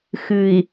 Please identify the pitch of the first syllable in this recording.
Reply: low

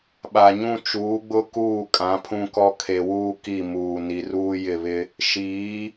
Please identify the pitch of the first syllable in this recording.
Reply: low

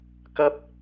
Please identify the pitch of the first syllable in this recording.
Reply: high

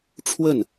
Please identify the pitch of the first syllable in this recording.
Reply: falling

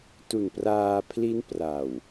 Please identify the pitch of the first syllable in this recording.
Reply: low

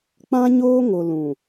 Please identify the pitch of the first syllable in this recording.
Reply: high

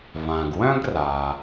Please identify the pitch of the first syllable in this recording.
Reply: low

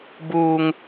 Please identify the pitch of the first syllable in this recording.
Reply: high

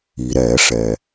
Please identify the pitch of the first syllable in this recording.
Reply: low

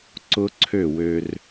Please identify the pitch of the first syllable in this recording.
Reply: high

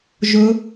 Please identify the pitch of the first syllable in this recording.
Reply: rising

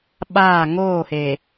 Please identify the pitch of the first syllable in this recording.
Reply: falling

